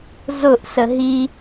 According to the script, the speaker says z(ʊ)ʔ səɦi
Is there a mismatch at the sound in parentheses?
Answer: no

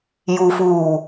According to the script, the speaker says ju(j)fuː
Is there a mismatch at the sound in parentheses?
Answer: yes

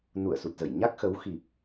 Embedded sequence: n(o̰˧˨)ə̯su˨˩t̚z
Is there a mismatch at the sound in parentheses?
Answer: yes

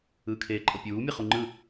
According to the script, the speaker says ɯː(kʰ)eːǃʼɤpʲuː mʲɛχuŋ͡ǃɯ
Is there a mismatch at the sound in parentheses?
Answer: no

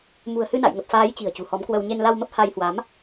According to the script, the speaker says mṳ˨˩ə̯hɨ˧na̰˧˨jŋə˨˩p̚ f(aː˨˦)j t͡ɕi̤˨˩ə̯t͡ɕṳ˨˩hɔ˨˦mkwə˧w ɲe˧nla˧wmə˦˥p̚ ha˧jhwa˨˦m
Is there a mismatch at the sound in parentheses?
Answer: no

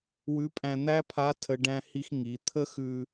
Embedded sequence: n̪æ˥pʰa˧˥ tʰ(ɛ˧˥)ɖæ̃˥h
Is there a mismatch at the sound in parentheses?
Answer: yes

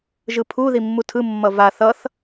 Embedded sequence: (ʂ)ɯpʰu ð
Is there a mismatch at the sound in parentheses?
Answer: yes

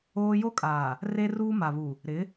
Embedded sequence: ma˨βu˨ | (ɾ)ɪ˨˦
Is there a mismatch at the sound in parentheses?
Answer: no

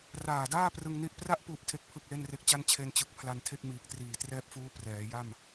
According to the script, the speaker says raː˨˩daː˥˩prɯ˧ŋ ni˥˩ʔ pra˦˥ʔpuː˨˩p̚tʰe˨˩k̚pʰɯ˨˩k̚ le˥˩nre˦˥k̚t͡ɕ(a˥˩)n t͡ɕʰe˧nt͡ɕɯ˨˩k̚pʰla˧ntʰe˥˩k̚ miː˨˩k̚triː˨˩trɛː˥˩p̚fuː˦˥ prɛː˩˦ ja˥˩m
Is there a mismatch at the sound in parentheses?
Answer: no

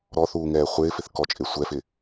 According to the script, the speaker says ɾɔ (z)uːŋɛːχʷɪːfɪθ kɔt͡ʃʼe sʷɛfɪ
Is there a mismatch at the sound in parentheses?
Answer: yes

